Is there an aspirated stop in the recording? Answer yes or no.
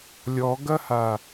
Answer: no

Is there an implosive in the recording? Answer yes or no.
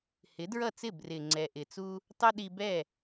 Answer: yes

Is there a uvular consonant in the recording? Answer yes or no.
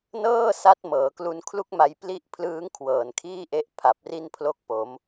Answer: no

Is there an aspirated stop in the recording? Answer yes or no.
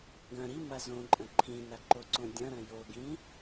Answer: yes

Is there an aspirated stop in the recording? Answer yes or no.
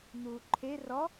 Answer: yes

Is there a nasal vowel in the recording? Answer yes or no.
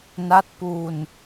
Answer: no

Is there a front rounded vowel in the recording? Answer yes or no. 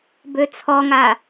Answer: yes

